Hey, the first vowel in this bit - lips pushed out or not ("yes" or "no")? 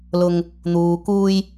yes